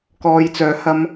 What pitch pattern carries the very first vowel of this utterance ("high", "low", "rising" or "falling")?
low